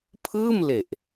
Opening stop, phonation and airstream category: aspirated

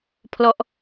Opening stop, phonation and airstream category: aspirated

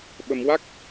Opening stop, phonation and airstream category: implosive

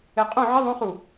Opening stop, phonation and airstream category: ejective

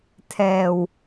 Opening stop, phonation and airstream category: aspirated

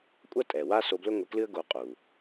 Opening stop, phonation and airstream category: ejective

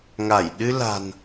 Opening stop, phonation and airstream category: implosive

